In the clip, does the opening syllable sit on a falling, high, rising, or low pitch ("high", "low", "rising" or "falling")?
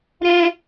high